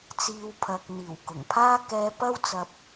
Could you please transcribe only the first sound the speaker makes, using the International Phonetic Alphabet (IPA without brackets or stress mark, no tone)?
t͡s